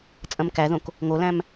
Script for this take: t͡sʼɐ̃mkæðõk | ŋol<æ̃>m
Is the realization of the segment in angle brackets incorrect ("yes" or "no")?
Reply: no